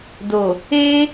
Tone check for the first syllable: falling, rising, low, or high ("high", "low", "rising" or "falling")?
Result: low